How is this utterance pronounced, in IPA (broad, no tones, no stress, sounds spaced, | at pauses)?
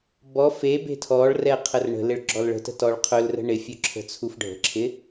b ɔ f e b e̤ tʰ ɔ ɭ r ɛ qʰ ə r ɳ ə̤ l ɪ ɭ ɡ͡ǁ ɔ l ɭ ə̤ t ə̤ t ɔ ɭ qʰ ɵ l r ə̤ ɳ ɪ fʲ ɵ ǁʰ ə̤ t͡sʰ u f ɖʱ ə̤ ǁʰ ɪ